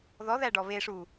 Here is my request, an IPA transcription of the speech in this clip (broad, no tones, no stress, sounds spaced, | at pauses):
ð ɔ ð æ ɖ ɔ β e ʂ u